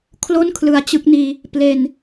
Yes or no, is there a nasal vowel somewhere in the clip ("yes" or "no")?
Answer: no